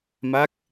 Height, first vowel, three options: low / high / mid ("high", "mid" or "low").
low